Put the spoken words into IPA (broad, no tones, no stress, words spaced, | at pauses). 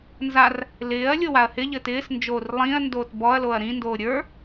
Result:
nzar | lɪːɐ̯ lʲowaɐ̯hɪʎɘːt ɪːsnd͡ʒoːr lˠĩɐ̯ndoːt bɔɐ̯loɐ̯ ɾĩndoː ɾʲə˞